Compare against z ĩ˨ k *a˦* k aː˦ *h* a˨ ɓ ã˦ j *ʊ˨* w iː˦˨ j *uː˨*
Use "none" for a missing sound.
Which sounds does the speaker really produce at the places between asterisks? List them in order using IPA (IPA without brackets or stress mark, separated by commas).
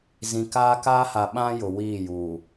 aː˦, h, ʊ˨, uː˨